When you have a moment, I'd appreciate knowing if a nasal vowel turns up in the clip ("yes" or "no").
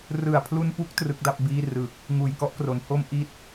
no